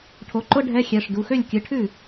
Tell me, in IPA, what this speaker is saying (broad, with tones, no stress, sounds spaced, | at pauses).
ʈʰ o˩˥ ǃ ʊ˧˥˧ ɖʱ ɛ˧˥˧ xʲ ɛ˩˧˩ ʂ d u˩˧˩ x ø˥˩ lʲ kʲ ɨ˩˥ ʈʰ ʉ˥˩